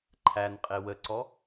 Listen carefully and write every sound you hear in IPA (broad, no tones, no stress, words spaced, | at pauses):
ǃʰænqʼe wəǀɔ